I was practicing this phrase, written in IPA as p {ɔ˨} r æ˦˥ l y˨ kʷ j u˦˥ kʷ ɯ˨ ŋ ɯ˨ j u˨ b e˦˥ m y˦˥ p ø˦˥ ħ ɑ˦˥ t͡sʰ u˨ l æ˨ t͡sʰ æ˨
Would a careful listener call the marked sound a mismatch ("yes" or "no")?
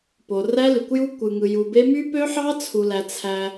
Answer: yes